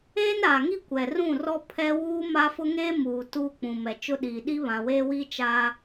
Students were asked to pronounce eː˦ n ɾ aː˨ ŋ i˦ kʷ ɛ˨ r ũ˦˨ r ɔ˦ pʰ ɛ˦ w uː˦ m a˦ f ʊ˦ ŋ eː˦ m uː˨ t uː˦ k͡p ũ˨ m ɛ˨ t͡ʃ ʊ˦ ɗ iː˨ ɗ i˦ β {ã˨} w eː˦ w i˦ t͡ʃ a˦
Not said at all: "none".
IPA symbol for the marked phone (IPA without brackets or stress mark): ã˨